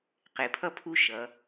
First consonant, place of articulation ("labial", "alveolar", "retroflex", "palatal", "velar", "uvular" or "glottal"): uvular